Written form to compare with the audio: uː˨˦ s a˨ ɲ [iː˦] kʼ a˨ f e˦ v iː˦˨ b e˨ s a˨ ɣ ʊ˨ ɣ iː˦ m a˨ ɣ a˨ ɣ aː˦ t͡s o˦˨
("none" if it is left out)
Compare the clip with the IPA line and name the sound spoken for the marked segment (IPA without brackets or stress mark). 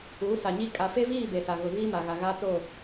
i˦